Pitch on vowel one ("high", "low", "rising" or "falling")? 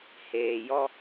low